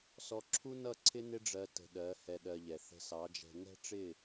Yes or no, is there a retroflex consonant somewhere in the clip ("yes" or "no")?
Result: yes